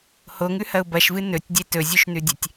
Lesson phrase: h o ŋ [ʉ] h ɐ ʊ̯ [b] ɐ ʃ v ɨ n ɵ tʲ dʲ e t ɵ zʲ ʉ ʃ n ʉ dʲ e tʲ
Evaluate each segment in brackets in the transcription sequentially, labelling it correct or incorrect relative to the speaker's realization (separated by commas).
correct, correct